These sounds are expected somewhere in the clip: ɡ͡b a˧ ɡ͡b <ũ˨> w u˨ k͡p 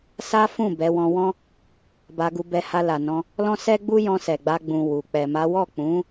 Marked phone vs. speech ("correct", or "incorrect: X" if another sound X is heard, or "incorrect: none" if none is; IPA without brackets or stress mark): correct